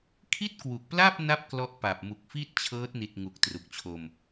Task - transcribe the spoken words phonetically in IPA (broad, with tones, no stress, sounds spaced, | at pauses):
kʰ i˥˩ t̚ k w u˨˩ k̚ p l a˥˩ p̚ n a˦˥ p̚ k l ɔ˦˥ ʔ p a˨˩ p̚ m u˨˩ k̚ f i˥˩ t̚ t͡ɕʰ ɤː˦˥ t̚ n i˨˩ t̚ ŋ u˨˩ k̚ t r u˨˩ k̚ t͡ɕʰ o˧ m